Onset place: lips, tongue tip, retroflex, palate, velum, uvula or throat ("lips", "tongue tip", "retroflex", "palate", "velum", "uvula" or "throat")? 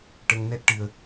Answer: retroflex